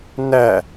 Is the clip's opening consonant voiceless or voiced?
voiced